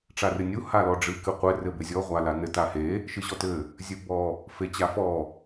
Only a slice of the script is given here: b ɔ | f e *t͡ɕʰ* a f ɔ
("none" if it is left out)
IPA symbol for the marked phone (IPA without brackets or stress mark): t͡ɕ